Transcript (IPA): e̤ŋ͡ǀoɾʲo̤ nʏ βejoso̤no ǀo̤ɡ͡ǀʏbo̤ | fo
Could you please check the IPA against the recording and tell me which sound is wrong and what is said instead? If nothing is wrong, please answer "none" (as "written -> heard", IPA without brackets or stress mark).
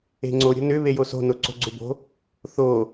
f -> θ